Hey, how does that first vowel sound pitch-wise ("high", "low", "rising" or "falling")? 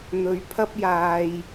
rising